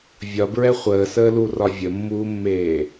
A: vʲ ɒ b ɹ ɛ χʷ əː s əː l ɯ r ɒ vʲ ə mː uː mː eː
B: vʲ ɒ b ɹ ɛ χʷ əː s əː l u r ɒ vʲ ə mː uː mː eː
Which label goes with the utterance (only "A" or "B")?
B